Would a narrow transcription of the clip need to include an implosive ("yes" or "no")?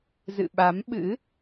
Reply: yes